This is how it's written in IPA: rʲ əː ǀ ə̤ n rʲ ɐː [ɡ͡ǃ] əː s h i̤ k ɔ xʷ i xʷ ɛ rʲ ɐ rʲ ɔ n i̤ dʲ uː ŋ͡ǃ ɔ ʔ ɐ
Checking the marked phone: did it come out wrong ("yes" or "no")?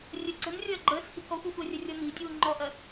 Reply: no